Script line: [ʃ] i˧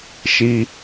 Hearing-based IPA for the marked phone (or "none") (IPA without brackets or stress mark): ʃ